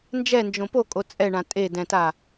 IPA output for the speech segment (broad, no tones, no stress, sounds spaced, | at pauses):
n d͡ʒ ɛ n d͡ʒ õ p o kʼ o t͡sʼ ɛ ɳ ã tʼ e d ɛ̃ t a